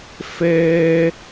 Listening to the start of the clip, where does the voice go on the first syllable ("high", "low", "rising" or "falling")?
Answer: high